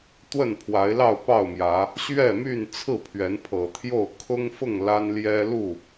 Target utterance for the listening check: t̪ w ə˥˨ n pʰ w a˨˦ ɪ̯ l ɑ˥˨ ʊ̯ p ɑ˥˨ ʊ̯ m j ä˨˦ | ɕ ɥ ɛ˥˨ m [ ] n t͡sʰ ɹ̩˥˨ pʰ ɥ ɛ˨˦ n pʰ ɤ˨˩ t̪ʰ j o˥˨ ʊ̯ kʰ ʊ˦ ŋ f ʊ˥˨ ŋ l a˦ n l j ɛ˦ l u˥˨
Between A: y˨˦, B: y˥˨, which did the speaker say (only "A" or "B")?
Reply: B